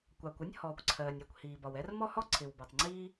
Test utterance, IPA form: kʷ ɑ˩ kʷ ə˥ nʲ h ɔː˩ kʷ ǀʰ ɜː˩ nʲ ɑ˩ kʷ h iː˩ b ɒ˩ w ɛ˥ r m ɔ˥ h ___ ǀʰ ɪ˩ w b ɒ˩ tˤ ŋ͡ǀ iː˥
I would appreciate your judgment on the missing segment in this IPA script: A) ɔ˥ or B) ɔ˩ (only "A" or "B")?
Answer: A